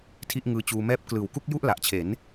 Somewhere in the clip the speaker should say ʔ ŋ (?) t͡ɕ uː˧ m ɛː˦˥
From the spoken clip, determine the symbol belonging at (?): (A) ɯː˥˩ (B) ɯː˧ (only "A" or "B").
B